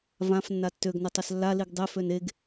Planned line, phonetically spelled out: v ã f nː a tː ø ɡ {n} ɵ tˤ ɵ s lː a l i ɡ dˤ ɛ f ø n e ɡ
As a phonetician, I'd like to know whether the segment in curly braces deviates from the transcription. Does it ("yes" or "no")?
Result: no